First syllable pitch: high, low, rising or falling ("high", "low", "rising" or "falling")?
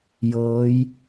rising